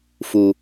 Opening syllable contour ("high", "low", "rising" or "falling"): low